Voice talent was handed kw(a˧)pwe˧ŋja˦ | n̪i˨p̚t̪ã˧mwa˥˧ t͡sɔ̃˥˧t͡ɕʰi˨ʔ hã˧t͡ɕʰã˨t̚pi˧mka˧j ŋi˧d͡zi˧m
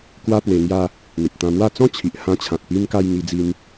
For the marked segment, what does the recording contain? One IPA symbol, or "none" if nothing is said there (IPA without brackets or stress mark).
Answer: a˦